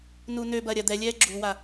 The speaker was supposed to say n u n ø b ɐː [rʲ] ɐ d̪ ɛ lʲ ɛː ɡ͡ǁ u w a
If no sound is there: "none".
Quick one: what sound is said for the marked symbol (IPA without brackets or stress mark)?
ɾʲ